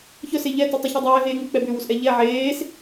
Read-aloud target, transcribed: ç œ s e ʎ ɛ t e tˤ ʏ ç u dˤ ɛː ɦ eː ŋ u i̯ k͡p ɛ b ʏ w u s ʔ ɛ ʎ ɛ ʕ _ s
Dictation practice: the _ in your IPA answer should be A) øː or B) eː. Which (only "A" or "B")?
B